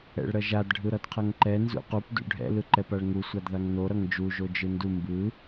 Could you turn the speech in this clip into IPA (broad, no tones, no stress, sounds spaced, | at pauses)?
ɛ̰ ɭ ɾ ʌ ʒ a d ɖʱ ɯ ɾ ʌ d qʰ ʌ ŋ ǃ ɛ n z ṵ q u p d ṵ ɖʱ ɛ̰ l ɯ ǃ ɛ p a ɭ ŋ u sʷ a d ð a ŋ n o ɾ ʌ ŋ d͡ʒ u ʒ o d͡ʒ ɯ n d u m b ɯ